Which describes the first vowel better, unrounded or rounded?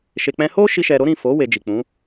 unrounded